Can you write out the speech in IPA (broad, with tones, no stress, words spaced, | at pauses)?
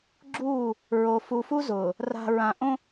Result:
ɡ͡ǁuː˦˨ | ɹo˨ fu˨fu˦zʊː˨ | ra̤˨ɹã˨ ʔõ˦